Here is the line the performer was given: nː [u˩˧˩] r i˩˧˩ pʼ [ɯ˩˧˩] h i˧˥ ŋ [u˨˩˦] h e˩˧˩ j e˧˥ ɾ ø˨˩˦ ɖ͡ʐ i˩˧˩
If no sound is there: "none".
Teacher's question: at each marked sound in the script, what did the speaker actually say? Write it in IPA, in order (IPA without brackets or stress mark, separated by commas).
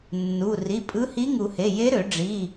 u˩˧˩, ɯ˧˥, u˨˩˦